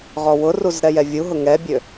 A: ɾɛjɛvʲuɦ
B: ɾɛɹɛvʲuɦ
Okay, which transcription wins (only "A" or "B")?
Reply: A